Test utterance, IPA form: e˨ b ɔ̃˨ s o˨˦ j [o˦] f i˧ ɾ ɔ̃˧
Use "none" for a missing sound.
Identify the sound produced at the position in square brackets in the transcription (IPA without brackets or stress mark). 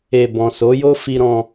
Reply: o˦